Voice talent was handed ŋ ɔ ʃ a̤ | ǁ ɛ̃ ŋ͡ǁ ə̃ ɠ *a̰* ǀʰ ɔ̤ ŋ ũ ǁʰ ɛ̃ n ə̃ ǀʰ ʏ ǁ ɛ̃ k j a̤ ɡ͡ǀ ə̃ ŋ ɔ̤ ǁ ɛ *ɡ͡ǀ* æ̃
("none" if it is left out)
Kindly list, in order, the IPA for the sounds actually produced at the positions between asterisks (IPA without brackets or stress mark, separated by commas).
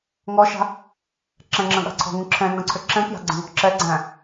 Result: a̤, ɡ͡ǀ